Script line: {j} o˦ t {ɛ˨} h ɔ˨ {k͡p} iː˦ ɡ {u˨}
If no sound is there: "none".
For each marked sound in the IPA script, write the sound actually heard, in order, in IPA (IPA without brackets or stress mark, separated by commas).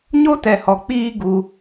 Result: ɲ, ɛ˨, k͡p, u˦